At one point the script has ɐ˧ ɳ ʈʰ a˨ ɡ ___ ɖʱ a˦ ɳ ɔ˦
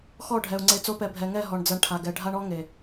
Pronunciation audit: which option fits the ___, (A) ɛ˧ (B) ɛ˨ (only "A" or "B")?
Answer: B